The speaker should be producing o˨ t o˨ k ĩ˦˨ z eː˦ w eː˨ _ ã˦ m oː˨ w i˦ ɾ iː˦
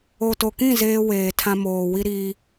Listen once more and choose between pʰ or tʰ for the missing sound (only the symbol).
tʰ